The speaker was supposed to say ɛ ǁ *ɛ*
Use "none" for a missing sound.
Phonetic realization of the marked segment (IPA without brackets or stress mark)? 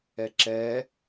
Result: ɛ